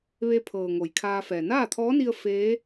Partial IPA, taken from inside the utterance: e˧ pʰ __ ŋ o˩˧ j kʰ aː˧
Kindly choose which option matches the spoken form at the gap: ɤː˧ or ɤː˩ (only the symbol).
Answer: ɤː˩